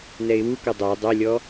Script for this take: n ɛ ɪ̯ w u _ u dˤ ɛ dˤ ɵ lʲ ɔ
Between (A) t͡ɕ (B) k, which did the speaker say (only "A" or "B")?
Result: B